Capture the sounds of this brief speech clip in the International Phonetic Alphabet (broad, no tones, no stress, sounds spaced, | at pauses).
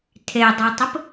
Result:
tʰ e dˤ ə˞ tˤ ə p